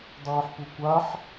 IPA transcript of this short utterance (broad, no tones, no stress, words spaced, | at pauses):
dˤɯːħpukʷaħ